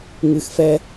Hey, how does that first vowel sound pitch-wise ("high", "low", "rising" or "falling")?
low